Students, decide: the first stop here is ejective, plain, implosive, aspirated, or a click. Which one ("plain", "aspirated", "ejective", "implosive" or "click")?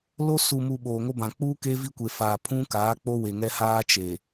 implosive